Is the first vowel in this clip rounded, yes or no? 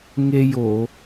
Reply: no